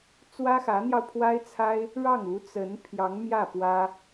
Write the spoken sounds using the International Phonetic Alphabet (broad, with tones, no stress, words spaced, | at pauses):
t͡swä˥xä˧˥n̪jɑ˧ʊ̯ pʰwa˥ɪ̯t͡sʰa˥ɪ̯ | ɻɑ˥˩ŋu˧˥ t͡sə˧˥n pʰjɑ˧˥ŋmjä˥˩ pwä˥